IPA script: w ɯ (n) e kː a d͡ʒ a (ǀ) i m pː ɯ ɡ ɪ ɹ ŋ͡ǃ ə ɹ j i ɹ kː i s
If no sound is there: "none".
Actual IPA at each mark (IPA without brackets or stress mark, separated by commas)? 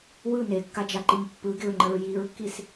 n, ǃ